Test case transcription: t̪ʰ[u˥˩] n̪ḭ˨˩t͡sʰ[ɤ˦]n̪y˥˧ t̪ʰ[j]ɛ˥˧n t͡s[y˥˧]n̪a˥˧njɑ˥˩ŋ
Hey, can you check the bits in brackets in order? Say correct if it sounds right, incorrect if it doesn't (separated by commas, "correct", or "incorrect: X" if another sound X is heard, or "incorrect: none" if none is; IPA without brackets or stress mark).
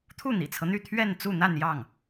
correct, correct, incorrect: ɥ, incorrect: u˥˧